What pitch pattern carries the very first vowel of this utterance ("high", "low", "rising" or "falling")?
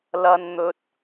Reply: high